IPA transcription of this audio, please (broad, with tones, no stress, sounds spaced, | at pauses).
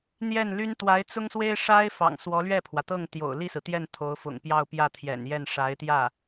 n̪ j ɛ˥˩ n l y˥ n t̪ w a˧˥ ɪ̯ t͡s ʊ˥ ŋ s w e˥ ɪ̯ ʂ a˥ ɪ̯ f ɑ̰˨˩ ŋ s w ɔ˧˥ l ɥ ɛ˥˩ pʰ w ä˩ t̪ ɤ˥˩ ŋ t̪ j o̰˨˩ ʊ̯ l i˥˩ s ɹ̩˩ t̪ j ɛ˥˩ n t̪ʰ o˧˥ ʊ̯ f ʊ̰˨˩ ŋ p j ɑ˥˧ ʊ̯ p j ä˥˩ t̪ʰ j ɛ̰˨˩ n j ɛ˥˩ n ʂ a˧˥ ɪ̯ t̪ j ä˥˩